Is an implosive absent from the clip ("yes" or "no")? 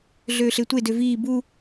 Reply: yes